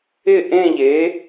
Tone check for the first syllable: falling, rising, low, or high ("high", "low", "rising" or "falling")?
falling